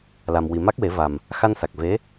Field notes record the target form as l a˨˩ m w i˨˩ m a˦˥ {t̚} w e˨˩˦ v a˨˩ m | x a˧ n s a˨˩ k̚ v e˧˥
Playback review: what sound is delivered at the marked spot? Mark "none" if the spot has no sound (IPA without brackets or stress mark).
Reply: k̚